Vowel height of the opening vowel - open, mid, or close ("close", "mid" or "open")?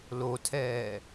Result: mid